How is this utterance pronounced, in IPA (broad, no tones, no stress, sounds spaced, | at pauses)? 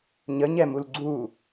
ɲ ə ɲ ɛ m u l ɡ͡ǀ u